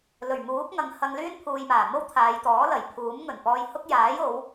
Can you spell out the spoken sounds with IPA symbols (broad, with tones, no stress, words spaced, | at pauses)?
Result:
lɵ˨˩ɥmuː˨˥k̚ŋɐ˨˧ŋ hɐ˧ŋlyː˥npʰuː˨j maː˨˩mo˥w t̪ʰaː˨˧jt̪ɔː˨˥lɐ˨˩j pʰuː˨˥mŋɵ˨˩n pɔː˧jhʊ˥k̚ jaː˨˥jo˨˧w